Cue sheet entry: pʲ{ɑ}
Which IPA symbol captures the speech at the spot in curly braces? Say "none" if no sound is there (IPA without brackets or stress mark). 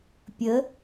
ə